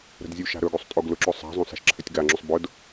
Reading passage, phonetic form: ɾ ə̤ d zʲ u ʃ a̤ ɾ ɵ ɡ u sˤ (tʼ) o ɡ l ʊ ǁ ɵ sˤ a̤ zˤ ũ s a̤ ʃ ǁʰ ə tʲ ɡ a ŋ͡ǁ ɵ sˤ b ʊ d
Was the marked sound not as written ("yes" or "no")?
no